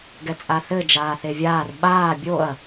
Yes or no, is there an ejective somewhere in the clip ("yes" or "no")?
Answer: yes